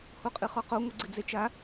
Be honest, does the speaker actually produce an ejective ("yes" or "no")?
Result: yes